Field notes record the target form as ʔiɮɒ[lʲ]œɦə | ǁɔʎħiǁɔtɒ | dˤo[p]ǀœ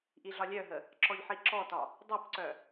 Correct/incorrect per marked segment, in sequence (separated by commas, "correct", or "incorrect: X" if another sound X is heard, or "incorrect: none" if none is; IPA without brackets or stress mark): correct, correct